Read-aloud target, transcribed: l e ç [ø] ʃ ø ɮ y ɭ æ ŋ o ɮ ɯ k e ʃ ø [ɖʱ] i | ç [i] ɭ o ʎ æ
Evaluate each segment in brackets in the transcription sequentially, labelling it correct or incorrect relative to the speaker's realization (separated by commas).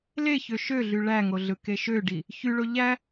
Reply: correct, incorrect, incorrect